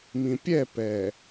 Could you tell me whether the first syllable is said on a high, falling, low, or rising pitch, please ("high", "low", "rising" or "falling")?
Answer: low